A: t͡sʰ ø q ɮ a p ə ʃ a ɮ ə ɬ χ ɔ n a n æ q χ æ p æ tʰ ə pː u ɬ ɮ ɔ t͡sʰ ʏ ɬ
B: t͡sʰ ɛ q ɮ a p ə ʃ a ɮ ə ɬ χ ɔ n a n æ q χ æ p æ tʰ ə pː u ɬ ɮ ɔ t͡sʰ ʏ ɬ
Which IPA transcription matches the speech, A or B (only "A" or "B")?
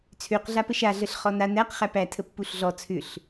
A